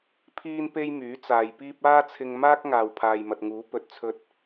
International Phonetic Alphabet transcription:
pʰ iː˥ n p e˥ j m yː˨˥ t͡s aː˨ j p iː˥ p̚ aː˥ t͡sʰ ɪ˧ ŋ m aː˥ k̚ ŋ aː˨ w pʰ aː˨ j m ɐ˨ t̚ ŋ uː˨˥ p ɵ˨ t̚ t͡sʰ ɵ˧ t̚

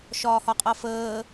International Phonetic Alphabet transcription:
ʃ ɒː h ɒ qʼ ʌ f əː

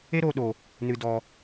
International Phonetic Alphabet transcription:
e˦ ɾ oː˧ ɗ o˧ | n ɨ˧ d ɔ˧

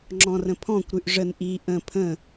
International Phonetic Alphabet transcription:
ŋ͡ǁ ɔ̃ r ə̃ pʰ ɔ̃ kʷ ɾ ʉ ʔ ʐ ə n ʔ i ʔ ə̃ pʰ ə̃

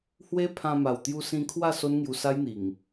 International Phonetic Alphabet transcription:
h w e˦ pʰ ã˧ m a˨˩ w t̪ j u˧ s ĩ˧ kʰ w a˥˧ s o˦ n ŋ j u˧ s a˦ j n̪ i˨˩ ŋ

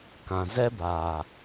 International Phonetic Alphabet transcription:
k ã˨ z ɛ˦ b aː˨

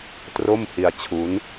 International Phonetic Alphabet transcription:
t r o˥˩ m h i˧ a̯ t͡ɕʰ u˦˥ n

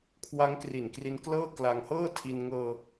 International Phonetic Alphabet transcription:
kʰ w a˦˥ ŋ k r i˨˩ n k r i˧ n k l ɤː˥˩ k l a˧ ŋ h ɤː˥˩ tʰ i˧ n ŋ ɤː˧

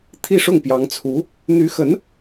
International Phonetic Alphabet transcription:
t̪ʰ i˥˧ ʂ ʊ˥˩ ŋ p j ɑ˧˥ ŋ t͡sʰ u˧˥ | n̪ y˧˥ x ə˧˥ n

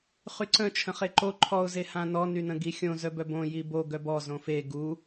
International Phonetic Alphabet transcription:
χ y ǀ ə̃ t͡ʃʰ ə̃ χ e ǃ o ǃʰ ɔ ʊ̯ z e h ã n ɔ n y n ə̃ ɡ i xʲ õ z œ b œ b õ j i b o ɡ œ b ɔ z õ f e ɡ u

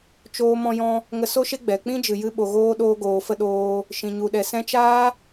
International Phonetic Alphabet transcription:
t͡ʃ oː˧ m ɔ̃˧ j ɔ̃˧ | ŋ ə˧ s o˦ ʃ e˦ ɡ͡b ɛ˨ k͡p ĩ˦ d͡ʒ ɨ˨ j ɨ˧ ɓ o˨ ɣ oː˦ ɗ oː˧ ɡ oː˨ f ə˧ ɗ oː˧ | ʃ ĩ˨ ɲ u˨ ɗ ɛ˨ s ɛ̃˦ t͡ʃ aː˦

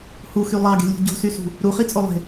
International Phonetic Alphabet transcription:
h u x y lˠ ɑ ɡ e̤ lʲ ṳ ɟ o̤ s y s ṳ | ɾ u χ i t͡sʼ o lˠ e̤

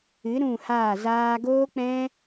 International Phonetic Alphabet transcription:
ɨ˨˦ ɾ ũ˦˨ h aː˦˨ z aː˦ ɡ oː˦ k͡p ɛ̃˦

